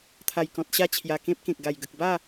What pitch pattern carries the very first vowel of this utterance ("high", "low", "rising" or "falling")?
low